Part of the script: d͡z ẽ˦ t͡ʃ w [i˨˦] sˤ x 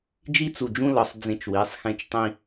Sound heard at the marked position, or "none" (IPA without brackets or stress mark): i˨˦